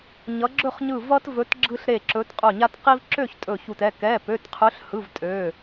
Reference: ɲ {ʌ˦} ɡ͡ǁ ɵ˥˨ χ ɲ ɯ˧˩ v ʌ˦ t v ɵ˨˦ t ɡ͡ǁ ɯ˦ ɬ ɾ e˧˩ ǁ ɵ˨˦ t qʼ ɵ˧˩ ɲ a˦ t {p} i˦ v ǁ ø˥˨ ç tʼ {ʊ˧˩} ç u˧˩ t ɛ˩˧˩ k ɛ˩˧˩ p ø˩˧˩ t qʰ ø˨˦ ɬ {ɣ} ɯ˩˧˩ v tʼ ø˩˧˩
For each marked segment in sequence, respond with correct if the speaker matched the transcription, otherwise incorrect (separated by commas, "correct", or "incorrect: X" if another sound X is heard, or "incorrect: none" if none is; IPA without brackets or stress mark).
incorrect: ʌ˨˦, incorrect: q, incorrect: ɵ˧˩, incorrect: h